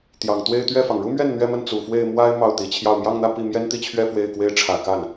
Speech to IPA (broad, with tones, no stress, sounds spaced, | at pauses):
t̪ j ɑ˨˩ ŋ t̪ w e˥˧ ɪ̯ t̪ ɥ ɛ˥˩ f ɑ˩ ŋ ɻ u˥ m ɥ ɛ˥˩ n n̪ ɥ ɛ˥ m ə˥˩ n t͡s u˨˩ f w e˥˩ ɪ̯ m w a˥ ɪ̯ m ɑ˥˩ ʊ̯ t̪ i˨˩ t͡ɕʰ j ɑ˥˧ ʊ̯ m j ɑ˥˧ ŋ n̪ ä˥˧ p i˥˩ m j ɛ˥ n t̪ i˥˧ t͡ɕʰ ɥ ɛ˥˧ f w e˥˩ ɪ̯ k w e˥ ɪ̯ ʈ͡ʂʰ ä˨˩ k a˥˩ n